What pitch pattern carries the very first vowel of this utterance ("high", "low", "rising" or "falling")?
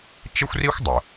high